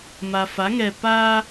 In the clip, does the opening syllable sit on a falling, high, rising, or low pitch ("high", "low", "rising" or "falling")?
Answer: low